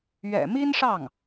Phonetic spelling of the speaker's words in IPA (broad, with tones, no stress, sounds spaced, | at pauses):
ɥ ɛ̰˨˩ m i˥ n ʂ ɑ˥˩ ŋ